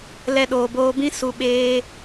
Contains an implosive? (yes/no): yes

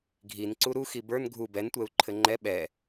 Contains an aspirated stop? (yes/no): yes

